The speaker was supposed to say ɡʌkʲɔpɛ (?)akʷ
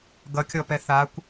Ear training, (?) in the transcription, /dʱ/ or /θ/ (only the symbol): θ